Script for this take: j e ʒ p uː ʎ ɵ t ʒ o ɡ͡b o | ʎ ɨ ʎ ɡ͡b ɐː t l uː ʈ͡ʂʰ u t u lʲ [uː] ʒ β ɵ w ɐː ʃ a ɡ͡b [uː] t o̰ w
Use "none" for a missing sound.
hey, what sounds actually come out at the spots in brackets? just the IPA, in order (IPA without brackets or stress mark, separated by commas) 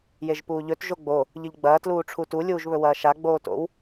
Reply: uː, oː